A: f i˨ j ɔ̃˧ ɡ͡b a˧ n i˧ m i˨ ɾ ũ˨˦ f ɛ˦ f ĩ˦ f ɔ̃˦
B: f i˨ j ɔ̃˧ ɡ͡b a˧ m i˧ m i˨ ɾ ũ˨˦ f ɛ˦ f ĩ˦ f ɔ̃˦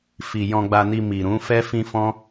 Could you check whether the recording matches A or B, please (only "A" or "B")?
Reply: A